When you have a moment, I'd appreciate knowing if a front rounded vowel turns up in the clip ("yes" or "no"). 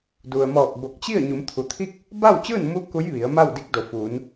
no